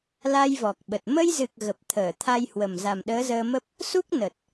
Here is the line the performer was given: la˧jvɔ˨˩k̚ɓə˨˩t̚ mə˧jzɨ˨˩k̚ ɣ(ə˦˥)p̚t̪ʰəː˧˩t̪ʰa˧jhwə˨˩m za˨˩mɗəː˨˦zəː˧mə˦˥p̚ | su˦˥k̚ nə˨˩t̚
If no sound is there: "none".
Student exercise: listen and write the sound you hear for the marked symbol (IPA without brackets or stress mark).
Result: ə˨˩